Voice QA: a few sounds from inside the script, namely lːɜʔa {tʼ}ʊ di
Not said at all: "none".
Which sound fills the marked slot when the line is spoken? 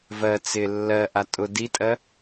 tʼ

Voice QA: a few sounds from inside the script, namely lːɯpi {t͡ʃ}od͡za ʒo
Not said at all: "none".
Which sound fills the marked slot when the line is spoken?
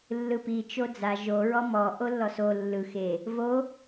t͡ʃ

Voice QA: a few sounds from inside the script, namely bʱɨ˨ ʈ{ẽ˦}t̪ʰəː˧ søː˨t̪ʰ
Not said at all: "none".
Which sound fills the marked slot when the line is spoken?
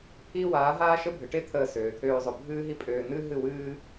e˦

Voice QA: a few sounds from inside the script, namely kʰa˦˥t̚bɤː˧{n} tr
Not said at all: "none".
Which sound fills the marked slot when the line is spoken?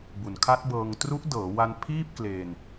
ŋ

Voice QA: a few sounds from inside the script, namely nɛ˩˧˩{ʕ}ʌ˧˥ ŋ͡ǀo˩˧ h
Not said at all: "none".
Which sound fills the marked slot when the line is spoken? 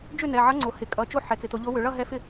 ʕ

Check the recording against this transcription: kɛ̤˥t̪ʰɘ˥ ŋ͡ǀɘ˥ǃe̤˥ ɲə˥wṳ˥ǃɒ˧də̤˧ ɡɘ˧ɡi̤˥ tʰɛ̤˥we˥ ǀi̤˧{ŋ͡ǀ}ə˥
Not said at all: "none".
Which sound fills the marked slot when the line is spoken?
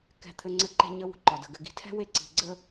ɡ͡ǀ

